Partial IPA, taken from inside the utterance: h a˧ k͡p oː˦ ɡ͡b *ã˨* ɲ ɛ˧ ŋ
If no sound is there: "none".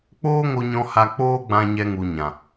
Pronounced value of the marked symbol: ã˧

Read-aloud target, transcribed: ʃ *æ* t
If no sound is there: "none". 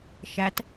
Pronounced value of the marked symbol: æ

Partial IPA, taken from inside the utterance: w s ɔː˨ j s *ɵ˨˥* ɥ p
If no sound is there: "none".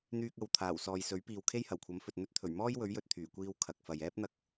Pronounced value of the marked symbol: ɵ˨˥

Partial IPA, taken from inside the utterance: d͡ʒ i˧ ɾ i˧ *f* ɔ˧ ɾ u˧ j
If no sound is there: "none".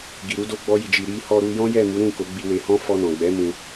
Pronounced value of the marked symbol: h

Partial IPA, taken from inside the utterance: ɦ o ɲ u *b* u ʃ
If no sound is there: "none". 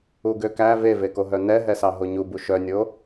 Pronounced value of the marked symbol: b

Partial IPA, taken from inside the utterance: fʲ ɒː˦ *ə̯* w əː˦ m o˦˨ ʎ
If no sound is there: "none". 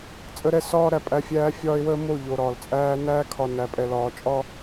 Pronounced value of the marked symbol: ɪ̯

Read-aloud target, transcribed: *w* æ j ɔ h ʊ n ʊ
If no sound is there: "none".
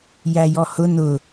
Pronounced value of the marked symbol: j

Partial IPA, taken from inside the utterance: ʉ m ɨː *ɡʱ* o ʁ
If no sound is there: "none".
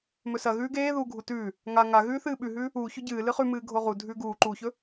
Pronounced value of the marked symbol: ɡʱ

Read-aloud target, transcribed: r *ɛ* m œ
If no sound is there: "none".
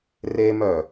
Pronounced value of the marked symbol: e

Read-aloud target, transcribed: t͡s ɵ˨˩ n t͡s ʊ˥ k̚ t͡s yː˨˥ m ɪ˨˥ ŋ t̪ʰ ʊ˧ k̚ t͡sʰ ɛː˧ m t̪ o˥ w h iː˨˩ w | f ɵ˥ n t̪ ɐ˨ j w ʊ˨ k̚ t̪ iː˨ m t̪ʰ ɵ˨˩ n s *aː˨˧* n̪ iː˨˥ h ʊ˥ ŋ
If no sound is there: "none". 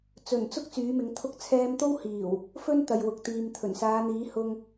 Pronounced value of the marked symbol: aː˨˧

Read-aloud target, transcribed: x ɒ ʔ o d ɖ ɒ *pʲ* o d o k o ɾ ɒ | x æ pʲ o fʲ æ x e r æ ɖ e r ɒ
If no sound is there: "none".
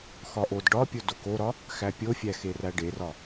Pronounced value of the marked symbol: pʲ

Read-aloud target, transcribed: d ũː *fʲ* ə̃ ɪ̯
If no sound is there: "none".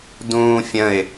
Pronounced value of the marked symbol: fʲ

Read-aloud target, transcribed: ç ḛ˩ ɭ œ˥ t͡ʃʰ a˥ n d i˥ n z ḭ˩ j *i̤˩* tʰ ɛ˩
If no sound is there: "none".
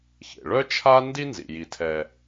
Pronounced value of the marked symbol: i˩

